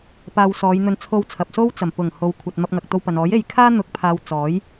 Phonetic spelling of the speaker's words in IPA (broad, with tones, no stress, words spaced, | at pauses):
paː˧wsɔː˨˧jn̪ɵ˧n t͡sʰo˧wt͡sʰɐ˨p̚so˥w t͡sɐ˨˩mpʊ˨˩ŋho˨wkʷʰɐ˨t̚ mɐ˧p̚ŋɐ˨k̚t̪o˧wpɐ˨n ɔː˨˥je˧jkʰaː˥ n̪ʊ˨˥k̚pʰaː˨w t͡sɔː˨˥j